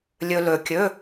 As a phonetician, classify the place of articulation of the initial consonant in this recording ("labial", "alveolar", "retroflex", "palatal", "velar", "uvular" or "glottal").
alveolar